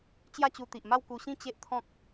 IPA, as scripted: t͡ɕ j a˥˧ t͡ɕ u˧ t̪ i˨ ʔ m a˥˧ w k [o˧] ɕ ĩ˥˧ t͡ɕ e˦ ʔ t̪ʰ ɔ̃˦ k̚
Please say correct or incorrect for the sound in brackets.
incorrect